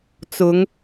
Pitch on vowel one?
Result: rising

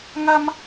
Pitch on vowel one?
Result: high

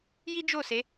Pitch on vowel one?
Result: high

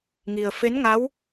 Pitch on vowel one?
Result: low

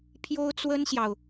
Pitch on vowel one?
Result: high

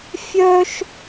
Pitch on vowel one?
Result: high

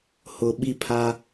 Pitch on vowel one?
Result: low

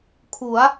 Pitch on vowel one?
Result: rising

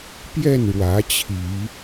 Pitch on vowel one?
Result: falling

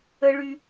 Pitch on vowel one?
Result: high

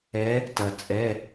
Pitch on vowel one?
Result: rising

